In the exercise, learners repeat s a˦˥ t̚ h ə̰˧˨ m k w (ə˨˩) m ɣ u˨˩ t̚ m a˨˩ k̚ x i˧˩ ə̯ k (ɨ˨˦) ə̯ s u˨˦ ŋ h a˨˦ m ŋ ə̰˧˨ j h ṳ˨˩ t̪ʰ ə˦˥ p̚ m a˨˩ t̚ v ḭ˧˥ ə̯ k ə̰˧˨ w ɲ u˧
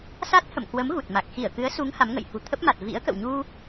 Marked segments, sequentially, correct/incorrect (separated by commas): incorrect, correct